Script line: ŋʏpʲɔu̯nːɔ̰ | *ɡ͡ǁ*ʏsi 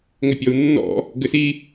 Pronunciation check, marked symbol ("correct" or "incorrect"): incorrect